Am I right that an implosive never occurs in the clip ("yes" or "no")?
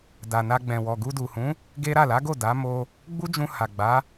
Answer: yes